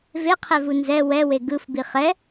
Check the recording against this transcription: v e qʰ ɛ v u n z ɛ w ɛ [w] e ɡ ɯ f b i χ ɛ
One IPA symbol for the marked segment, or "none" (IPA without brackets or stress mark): w